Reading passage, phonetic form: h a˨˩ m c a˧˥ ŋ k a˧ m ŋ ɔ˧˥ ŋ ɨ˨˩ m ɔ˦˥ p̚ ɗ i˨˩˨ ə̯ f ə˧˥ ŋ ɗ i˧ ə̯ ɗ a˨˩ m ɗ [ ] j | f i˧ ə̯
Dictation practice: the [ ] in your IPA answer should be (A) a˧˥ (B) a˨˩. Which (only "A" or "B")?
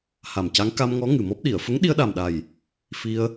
B